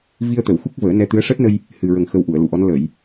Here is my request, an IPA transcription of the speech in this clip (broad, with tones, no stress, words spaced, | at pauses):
vi˧ə̯t̪ə˨˩˨w xu˦˥k̚vəː˨˩˦ nɛ˧t̪ɨ˧˥ə̯ ʂəː˦˥t̚nə˧j | hɨ˨˩ɹə˨˩ŋ xə˧wʔu˨˩˨ə̯ lu˨˩˨ʔɔ˧˥n lə˨˩˨j